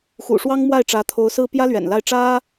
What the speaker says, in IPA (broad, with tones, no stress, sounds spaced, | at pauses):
x ṵ˨˩ ʂ w ɑ˥ ŋ m w a˥˩ ɪ̯ ʈ͡ʂ ä˧˥ t̪ʰ o˧˥ ʊ̯ s ɹ̩˥ p j ä˥ l ɥ ɛ̰˨˩ n l a˥˩ ɪ̯ ʈ͡ʂ ä˥